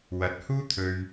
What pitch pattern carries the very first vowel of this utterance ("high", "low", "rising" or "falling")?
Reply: rising